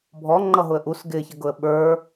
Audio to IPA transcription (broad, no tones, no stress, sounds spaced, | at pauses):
bʱ ɔ ŋ͡ǃ ʌ ɦ ʊ ə̯ ʔ u s ɡ ɪ ç ə ɡ ʊ ə̯ ɓ ə˞